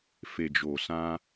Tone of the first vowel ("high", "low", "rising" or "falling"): low